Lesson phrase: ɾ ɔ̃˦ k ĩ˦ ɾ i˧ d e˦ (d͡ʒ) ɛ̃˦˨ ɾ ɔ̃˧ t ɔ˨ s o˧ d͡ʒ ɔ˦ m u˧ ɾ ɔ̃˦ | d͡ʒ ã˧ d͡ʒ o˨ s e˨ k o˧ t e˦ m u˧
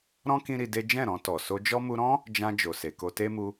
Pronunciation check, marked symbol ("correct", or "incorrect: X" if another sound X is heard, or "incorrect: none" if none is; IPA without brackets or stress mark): correct